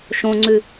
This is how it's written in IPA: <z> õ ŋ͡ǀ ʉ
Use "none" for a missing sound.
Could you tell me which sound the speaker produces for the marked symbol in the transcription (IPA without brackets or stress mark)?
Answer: ʃ